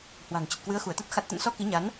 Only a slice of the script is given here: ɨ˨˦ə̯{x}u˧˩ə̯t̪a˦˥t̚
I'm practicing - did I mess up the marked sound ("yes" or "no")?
no